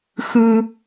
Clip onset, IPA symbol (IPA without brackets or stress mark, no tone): x